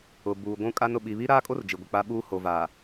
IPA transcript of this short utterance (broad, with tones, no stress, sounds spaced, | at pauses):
ʊ˨ b uː˨ ɡʷ ũ˦ kʼ a˦ n ʊ˨ ɓ i˨ β i˦ ɾ aː˦ kʼ o˦ r d͡ʒ i˨ ɡʷ ɪ˨ k͡p a˦ ɓ uː˦ h o˨ v aː˨